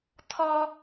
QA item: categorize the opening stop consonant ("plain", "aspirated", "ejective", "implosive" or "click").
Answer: aspirated